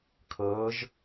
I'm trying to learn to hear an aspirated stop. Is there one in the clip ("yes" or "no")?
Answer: yes